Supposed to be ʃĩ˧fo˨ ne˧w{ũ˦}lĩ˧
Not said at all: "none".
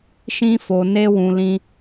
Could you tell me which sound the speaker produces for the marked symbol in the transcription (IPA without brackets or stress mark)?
ũ˨